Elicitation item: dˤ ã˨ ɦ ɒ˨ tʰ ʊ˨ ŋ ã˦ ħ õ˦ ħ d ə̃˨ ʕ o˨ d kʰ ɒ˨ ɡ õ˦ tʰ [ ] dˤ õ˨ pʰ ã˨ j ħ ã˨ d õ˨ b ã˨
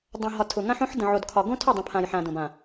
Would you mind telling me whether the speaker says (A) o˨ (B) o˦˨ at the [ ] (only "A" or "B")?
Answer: B